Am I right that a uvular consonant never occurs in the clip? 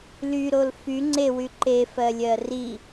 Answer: yes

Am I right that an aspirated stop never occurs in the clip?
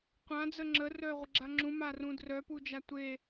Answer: yes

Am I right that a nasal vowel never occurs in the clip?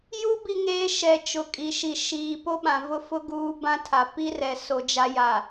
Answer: no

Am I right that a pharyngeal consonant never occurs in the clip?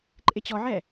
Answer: no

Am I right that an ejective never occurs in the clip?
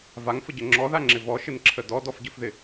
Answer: yes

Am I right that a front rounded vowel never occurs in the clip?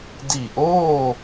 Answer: yes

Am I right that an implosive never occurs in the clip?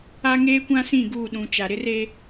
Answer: no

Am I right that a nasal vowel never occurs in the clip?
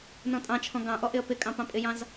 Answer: no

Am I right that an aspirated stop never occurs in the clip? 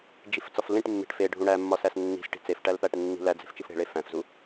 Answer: yes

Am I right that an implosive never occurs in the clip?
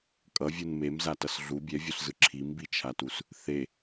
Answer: yes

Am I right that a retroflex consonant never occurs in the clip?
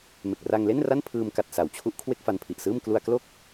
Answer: yes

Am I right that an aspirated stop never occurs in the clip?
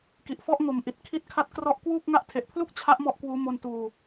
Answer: no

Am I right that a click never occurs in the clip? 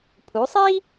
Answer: yes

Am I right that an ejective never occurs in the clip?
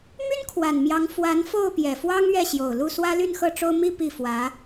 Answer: yes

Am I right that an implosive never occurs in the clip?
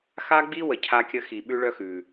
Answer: no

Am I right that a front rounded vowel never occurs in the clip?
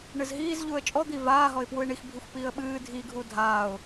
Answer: yes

